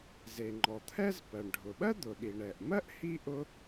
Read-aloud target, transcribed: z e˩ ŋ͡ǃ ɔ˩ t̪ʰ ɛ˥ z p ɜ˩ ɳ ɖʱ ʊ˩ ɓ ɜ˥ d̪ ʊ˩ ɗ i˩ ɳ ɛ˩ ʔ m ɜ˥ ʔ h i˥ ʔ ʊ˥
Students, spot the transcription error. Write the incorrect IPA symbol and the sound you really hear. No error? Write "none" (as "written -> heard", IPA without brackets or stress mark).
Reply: none